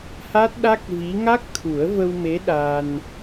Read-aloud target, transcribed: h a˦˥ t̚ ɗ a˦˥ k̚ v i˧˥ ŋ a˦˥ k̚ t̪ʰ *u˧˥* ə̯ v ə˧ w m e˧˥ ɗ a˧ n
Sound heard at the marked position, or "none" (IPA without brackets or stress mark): u˨˩˦